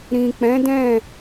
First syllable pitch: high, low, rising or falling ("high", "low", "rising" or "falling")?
low